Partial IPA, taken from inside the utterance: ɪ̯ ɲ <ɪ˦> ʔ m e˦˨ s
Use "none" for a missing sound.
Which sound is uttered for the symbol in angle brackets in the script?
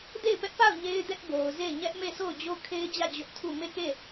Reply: ɛ˦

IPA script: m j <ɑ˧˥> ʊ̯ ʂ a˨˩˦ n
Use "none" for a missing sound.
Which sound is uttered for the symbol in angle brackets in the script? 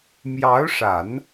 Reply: ɑ˧˥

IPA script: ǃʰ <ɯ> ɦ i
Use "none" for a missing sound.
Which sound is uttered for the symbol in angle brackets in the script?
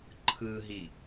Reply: ɯ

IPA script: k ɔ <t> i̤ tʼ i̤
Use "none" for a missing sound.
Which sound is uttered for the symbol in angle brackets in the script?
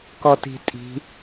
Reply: t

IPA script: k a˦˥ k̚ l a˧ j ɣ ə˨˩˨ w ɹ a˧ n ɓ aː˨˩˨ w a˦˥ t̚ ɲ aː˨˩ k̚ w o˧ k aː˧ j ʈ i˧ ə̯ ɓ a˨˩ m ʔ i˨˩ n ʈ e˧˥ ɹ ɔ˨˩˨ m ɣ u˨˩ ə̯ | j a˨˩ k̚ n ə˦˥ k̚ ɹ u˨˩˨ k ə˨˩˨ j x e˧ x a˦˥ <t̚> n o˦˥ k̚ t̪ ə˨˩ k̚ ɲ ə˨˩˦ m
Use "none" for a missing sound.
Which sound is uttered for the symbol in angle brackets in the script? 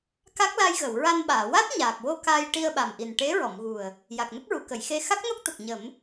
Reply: k̚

